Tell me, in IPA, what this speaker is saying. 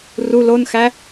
r u l o n x æ

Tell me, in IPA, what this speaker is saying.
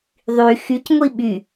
ðˤ y x y c ŋʷ i ɓ y

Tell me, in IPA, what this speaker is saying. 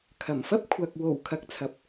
kʰ ɐ˨˩ m f ɐ˥ p̚ kʷʰ ɐ˨ k̚ w o˨˩ w kʰ ɐ˨˥ k̚ t͡sʰ ɐ˨ p̚

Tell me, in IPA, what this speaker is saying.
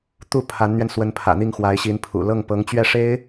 t̪ u˥˩ pʰ a˧˥ n n̪ ɥ ɛ˧ n s w ə˧˥ n pʰ ä̰˨˩ n̪ i˥˩ ŋ x w a˧˥ ɪ̯ ɕ i˧˥ n pʰ ṵ˨˩ l ɤ˥˩ ŋ p ɤ˧˥ ŋ t͡ɕ ɥ ɛ˥˩ ʂ e˥ ɪ̯

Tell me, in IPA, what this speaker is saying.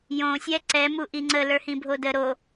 j õ sʲ ɛ ǀ ɛ m u ʔ i ŋ͡ǀ ə l ə˞ h ĩ bʱ o d ə ɾ o

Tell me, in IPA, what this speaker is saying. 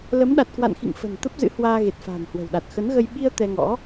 l ə˨˦ m ɗ a˨˩ t̚ k w a̰˧˨ n x ḭ˧˨ ŋ f ə̤˨˩ n t̪ ə˦˥ p̚ z ɨ̰˧˥ h w aː˧ ɣ e˨˩ t̚ f a̤ː˨˩ n h w ə̤˨˩ w ɗ a˨˩ t̚ x ə˨˦ n ɣ ə˧ j ɓ i˧ ə̯ t̪ ɛ˧ ŋ ɔ̰˧˥

